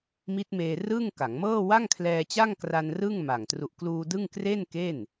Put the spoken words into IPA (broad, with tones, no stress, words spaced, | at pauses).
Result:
mi˦˥t̚meː˧rɯ˥˩ŋ ka˩˦ŋmɤː˥˩ wa˥˩ŋkʰlɛː˧t͡ɕa˥˩ŋ kra˧n rɯ˥˩ŋma˨˩ŋ tru˨˩ʔkluː˧ dɯ˥˩ŋ kre˥˩nke˥˩n